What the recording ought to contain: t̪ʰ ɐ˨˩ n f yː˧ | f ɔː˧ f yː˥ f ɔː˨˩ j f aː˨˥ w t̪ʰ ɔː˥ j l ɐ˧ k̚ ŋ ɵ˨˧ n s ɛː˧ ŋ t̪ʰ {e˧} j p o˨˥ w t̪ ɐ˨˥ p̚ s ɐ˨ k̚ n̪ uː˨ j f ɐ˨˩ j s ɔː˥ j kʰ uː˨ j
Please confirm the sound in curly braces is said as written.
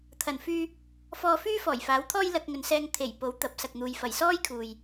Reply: no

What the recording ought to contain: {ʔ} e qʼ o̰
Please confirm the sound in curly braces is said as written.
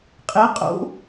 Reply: no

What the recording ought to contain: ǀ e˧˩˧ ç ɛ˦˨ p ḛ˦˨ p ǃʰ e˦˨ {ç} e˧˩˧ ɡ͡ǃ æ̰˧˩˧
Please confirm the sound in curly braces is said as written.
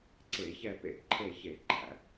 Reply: yes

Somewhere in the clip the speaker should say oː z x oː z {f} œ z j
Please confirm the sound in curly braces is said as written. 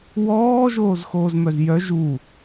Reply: no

